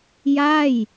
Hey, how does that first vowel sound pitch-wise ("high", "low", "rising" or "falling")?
falling